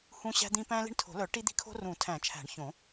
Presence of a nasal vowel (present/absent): present